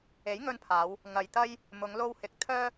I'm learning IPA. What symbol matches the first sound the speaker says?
e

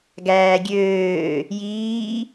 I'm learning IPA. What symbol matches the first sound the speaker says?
ɡ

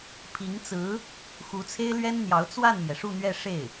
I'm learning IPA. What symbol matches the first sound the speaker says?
pʰ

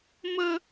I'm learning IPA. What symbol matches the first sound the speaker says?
m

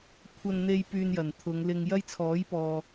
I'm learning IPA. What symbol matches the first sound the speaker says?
kʷʰ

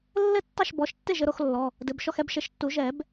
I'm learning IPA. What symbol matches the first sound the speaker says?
lː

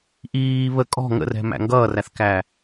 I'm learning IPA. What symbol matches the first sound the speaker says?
ʔ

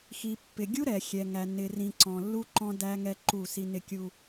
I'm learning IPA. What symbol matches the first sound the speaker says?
x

